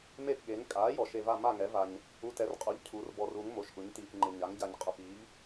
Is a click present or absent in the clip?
present